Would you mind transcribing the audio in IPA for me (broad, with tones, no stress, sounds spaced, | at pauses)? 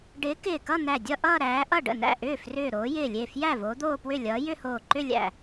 ɖ ɪː˨˦ k ɪː˧˩ k ʌ˥˧ n̪ æ˧˩ dʲ ʌ˥˧ ʔ ʌː˥˧ ɾ æː˨˦ ʔ ʌ˥˩ ɖ ə̰˥˩ n æ̰˥˩ ʔ ʏː˥˩ f r ʏː˧˩ ɾ oː˨˦ j ɪː˧˩ lʲ e˧˩ f j æ˥˩ v oː˨˦ d̪ oː˥˧ p w ʏ˥˩ lʲ ʌː˨˦ j ʏ˥˧ h oː˧˩ ǃ ʏ˥˧ lʲ æ̰˧˩